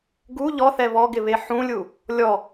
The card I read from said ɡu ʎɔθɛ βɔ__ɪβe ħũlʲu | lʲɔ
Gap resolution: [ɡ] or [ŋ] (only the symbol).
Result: ɡ